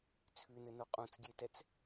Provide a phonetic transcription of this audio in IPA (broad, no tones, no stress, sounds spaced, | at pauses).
t͡sʰ ʉ n ɘ n o qʼ ũ t͡s ɡʲ e t ɛ t͡s